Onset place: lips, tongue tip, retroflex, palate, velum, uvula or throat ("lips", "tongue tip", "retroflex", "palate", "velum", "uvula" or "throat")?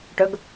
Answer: retroflex